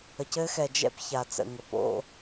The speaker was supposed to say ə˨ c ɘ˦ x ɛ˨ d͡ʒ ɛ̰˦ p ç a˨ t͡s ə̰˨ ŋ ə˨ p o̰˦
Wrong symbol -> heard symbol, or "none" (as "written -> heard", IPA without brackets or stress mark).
none